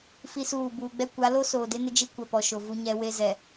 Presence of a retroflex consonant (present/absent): absent